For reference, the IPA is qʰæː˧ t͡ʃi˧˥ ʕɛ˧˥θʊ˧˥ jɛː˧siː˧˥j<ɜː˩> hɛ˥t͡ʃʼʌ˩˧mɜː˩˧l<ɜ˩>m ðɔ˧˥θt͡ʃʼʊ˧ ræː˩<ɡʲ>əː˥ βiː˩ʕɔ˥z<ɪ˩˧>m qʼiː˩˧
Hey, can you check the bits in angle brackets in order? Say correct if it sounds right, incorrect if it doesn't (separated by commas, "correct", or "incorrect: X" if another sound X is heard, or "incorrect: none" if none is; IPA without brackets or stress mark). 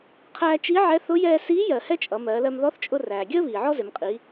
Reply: incorrect: ɜ˩, incorrect: ɜ˧, correct, correct